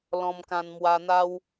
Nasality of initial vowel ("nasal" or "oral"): nasal